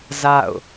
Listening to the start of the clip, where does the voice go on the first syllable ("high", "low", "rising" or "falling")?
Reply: falling